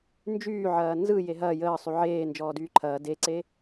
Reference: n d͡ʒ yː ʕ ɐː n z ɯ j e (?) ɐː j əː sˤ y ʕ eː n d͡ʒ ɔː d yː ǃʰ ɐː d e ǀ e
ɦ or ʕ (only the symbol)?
ɦ